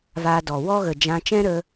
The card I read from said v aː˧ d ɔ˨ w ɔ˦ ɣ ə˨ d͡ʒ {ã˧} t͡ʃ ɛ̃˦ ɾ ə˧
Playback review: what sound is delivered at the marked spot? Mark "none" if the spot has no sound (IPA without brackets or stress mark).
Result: ã˧